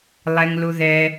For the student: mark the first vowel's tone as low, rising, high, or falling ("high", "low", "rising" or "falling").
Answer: low